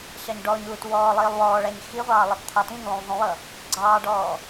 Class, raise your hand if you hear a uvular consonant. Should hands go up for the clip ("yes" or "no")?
yes